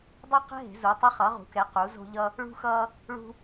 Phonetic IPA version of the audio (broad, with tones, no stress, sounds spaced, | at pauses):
dˤ ɯ˥ q ɛ̤˥ ɦ e̤˨˥ z u˨˥ tˤ ʌ˥ χ ʌ˨˥ ʁ ṳ˨˥ k ɛ˨˥ q u˨˥ z o̤˥ ʎ ʌ˥ | ɭ ṳ˥ x ʌː˥ | ɭ ṳ˥